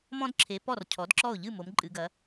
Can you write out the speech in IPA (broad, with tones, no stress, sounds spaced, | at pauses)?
m ɔ̃˧ d ǁʰ e˩˧ p ɔ˥˩ r cʰ ɔ˩˥ d ǁ ɔ˥˩ ʊ̯ ʎ ɨ˥˩ m o˩˧ m ǃʼ ɨ˩˧ ɡ ɐ˩˧